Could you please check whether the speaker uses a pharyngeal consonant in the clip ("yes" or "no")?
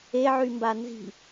yes